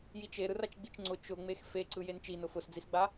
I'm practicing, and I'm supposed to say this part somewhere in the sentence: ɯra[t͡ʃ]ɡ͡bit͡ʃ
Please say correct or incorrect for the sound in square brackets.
correct